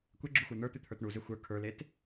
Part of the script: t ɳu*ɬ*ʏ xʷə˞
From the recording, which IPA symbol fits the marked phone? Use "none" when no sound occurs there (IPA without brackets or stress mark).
z